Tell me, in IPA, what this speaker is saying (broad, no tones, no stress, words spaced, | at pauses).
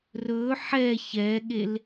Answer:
rɵ ħɛ çɛɠel